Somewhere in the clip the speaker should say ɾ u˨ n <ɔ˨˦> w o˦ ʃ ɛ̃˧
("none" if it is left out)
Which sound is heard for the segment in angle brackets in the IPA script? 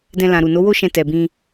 o˨˦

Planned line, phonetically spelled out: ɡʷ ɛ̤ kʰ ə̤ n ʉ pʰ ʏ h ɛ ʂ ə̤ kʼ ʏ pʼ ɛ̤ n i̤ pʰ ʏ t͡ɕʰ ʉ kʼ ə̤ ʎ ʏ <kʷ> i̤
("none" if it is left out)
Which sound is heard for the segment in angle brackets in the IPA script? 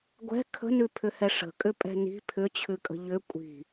kʷʼ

